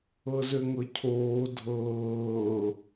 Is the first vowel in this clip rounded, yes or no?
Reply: no